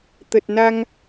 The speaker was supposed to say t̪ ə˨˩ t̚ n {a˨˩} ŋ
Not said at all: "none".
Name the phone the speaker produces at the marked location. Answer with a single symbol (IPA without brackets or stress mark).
a˧